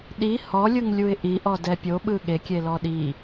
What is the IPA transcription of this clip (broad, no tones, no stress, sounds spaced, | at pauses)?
ɗ i h ɔ lʲ ɯ ŋ lʲ u ɪ̯ ʔ i ʔ ɔ d ɛ pʲ o ɓ ɯ ɠ e kʲ e l ɔ ɗ i